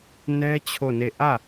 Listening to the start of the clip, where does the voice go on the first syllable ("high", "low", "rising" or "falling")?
high